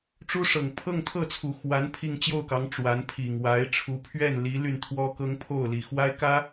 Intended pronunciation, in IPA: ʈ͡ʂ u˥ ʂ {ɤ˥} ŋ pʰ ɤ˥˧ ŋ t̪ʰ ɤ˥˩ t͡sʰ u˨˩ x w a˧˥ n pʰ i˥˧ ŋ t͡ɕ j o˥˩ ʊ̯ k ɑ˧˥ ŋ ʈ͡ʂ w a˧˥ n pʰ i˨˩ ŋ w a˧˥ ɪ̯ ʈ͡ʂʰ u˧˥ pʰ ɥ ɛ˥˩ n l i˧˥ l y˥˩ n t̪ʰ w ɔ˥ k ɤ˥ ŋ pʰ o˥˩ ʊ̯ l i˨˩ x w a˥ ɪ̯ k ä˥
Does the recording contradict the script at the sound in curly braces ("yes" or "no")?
yes